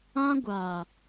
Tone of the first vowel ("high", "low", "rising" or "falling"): high